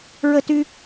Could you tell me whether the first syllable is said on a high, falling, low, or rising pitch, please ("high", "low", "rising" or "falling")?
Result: high